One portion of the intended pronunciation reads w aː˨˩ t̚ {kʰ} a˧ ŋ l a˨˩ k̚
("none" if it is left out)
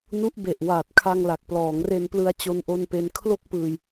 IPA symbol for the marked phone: kʰ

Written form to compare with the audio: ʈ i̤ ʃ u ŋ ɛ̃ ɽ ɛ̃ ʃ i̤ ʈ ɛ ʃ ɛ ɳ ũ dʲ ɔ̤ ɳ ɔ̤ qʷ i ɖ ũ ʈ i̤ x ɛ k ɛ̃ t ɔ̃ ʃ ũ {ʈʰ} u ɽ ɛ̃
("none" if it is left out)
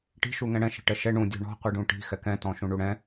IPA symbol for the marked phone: ɳ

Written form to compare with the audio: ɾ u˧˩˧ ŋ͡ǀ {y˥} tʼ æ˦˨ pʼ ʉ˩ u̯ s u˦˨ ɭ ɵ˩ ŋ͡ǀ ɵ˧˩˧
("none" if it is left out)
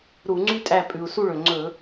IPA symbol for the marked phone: y˥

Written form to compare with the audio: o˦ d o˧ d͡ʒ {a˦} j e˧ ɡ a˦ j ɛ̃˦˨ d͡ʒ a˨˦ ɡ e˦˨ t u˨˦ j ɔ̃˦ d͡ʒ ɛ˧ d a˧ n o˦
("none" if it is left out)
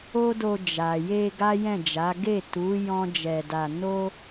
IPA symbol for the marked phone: a˨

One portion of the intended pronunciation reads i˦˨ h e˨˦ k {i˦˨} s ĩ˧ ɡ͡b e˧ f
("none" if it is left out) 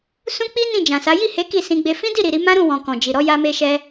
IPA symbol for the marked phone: i˦˨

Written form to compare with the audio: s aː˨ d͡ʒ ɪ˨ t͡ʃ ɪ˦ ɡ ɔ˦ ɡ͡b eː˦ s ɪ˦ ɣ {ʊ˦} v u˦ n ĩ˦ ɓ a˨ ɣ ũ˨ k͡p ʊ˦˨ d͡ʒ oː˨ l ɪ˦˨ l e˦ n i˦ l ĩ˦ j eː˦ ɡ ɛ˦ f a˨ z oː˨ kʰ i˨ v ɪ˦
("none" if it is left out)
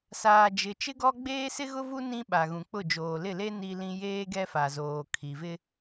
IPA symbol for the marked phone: ʊ˦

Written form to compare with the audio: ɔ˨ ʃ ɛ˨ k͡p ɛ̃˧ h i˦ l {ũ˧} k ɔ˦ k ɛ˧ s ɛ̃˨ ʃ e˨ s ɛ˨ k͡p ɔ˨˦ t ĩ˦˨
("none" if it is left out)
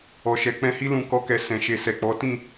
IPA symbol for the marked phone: ũ˧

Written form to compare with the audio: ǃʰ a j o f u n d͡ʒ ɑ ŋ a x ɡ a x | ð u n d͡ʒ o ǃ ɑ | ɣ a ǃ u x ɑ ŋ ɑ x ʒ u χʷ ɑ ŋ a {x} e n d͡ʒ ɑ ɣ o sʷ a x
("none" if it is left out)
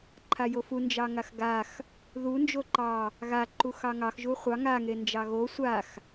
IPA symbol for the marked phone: ŋ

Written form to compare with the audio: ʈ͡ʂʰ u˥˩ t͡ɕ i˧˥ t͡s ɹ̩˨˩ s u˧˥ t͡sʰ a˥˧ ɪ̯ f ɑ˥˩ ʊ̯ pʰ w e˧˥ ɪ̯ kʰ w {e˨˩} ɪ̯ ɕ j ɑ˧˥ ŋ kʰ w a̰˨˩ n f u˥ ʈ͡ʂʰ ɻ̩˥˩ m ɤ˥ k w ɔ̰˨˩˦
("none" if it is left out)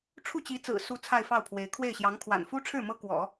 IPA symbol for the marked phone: e˥˩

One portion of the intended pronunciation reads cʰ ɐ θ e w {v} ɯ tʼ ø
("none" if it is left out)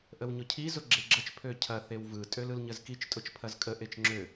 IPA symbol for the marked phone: v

